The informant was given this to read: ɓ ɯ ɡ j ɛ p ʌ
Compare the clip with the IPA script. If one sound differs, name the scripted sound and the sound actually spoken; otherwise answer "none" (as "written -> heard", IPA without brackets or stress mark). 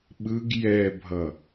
p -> bʱ